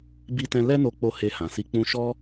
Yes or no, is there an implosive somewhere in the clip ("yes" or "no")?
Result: no